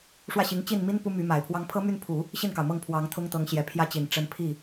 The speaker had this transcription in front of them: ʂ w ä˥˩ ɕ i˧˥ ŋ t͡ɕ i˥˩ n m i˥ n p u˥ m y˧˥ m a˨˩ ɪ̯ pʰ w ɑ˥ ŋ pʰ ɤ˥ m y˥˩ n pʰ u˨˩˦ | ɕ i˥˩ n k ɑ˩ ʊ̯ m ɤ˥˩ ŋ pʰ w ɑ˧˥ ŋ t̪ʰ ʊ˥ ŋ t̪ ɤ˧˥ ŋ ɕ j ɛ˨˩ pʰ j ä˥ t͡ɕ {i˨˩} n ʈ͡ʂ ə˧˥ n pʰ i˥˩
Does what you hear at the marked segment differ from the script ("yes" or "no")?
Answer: no